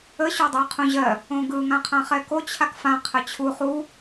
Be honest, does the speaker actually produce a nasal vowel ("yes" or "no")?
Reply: yes